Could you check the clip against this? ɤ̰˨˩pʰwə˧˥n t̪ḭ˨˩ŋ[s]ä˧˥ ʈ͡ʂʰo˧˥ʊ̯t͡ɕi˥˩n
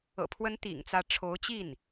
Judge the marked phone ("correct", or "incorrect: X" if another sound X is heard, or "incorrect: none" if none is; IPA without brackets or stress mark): incorrect: t͡s